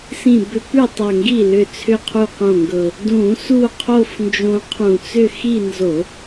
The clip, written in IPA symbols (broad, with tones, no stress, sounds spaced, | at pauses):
s ĩ˧˩ b ʏ˧ p ʉ˥˩ tˤ ʌ˧˩ ŋ ɡ i˥˩ l ʏ˧˩ t͡sʰ ʏ˥˧ qʰ u˥˩ q õ˥˩ ŋ ɡ ɤ˧˩ | d ũ˧˩˧ s u˥˧ qʰ o˥˧ f n d͡ʒ õ˧ qʰ ũ˧˩˧ t͡s ʏ˥˧ x i˥˧ n z o˧˩˧